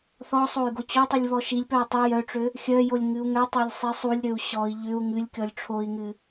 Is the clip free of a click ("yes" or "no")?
yes